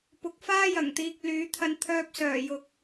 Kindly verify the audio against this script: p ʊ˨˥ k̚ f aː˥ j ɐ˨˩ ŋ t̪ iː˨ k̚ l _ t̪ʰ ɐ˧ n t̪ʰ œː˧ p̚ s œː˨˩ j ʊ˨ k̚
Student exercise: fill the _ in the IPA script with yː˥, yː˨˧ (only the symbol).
yː˨˧